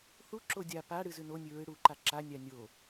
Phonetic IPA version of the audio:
θ u ǁ o dʲ a p a ɽ ɨ z ʉ n o nʲ ɨ ɹ ɨ ɽ u ǃ a ǁ a nʲ a nʲ o

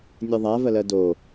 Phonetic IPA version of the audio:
nʲ ɛ ðˤ a v ɜ l ɜ d o

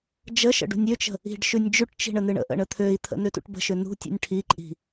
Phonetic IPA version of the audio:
d͡ʒ ə ʃ ə̰ ɖ ṳ nʲ ʏ t͡ʃ ə̤ | i̤ ɖ ʃ ʉ nʲ d͡ʒ ʉ ʈ t͡ʃ i̤ ɳ ə n ɨ ɳ ə̰ ʔ ə̰ ɳ ə t̪ʰ ø i̯ t̪ʰ ə̰ n ø t ṵ ʈ b ə̤ ʃ ʏ n ṳ tʲ ṵ nʲ ʈʰ i ǃʼ i̤

